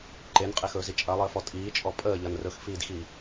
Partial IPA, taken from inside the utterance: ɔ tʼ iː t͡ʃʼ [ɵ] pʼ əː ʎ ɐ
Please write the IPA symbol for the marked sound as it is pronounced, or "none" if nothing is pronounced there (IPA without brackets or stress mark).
ɔ